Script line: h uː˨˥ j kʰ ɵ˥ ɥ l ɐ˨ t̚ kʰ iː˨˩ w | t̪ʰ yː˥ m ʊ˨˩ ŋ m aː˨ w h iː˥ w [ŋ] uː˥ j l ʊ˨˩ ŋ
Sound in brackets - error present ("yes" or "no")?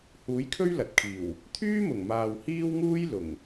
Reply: no